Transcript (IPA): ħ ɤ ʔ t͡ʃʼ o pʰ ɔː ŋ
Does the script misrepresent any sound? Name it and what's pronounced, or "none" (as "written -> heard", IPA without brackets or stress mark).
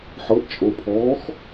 ŋ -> x